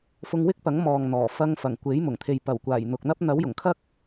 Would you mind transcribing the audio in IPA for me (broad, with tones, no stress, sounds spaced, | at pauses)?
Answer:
f ʊ˧ ŋ w ɪ˥ k̚ p ɐ˨˥ ŋ m ɔː˨ ŋ n̪ ɔː˨˩ f ɐ˧ ŋ f ɐ˨˩ ŋ kʷ e˨˥ j m ʊ˨˩ ŋ t̪ʰ e˨ j p ɐ˨˩ w kʷ aː˨˩ j n̪ ʊ˨ k̚ n̪ ɐ˥ p̚ n̪ ɐ˨˥ w j ʊ˨˩ ŋ kʰ ɐ˥ k̚